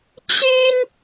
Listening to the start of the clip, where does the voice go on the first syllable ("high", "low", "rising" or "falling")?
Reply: high